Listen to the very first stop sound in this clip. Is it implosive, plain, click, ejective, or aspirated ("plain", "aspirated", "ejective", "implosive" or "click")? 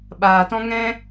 implosive